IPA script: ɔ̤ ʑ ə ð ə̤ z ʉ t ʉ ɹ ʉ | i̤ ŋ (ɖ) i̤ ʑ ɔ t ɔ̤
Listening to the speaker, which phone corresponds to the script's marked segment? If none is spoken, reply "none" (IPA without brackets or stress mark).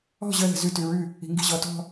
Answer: ɡ